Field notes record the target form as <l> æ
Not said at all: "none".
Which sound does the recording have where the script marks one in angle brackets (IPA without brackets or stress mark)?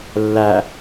lː